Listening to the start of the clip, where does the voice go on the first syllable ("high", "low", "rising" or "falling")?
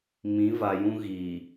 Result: rising